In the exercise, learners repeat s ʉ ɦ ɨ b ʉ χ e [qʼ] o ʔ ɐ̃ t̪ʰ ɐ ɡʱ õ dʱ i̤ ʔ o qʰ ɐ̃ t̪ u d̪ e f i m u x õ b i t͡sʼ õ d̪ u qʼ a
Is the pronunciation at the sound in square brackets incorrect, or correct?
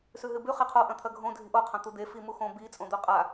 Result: incorrect